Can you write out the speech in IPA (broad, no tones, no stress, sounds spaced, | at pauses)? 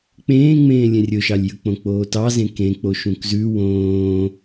k͡p ẽː ŋ͡m ẽː lʲ ẽ rʲ ɵ ʃ ɑ lʲ j ɵ k͡p õ k͡p oː t ɑ z ẽ k ẽ k͡p o ʃ ũ k z ʉ w õː